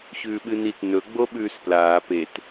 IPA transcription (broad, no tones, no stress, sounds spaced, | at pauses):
ç ʉː ɓ ɨ n i t n ɵ ɡ͡b o ɓ ʉː s p l aː p e t